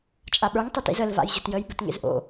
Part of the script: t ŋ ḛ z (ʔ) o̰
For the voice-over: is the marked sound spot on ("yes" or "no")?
yes